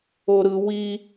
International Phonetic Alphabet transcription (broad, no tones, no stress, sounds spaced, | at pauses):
o ɾ ɯ w i